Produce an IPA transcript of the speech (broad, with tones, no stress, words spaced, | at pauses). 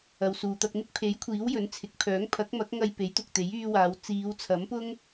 ɐ˨wsuː˨t̪ɐ˧k̚n̪ɪ˥k̚ pʰe˨˥jkʷʰiː˨˥w jɵ˨˥nt͡sʰɪ˨k̚pʰœː˨˥ŋ pʰɐ˨˥k̚mɐ˨˥k̚ ŋɐ˧jpe˨˥jt̪ʊ˨k̚t̪e˨˥j yː˧waː˨˧w t͡siː˨˧wt͡sʰɐ˨˥mpʊ˥ŋ